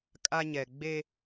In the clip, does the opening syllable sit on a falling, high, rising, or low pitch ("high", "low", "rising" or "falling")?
high